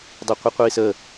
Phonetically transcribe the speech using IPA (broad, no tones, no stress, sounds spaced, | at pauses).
dˤ ɛ qʷ i qʷ iː s ə